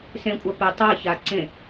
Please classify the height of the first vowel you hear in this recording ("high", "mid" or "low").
mid